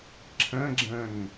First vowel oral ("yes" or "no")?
no